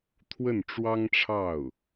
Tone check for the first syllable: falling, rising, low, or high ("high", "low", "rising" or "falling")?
falling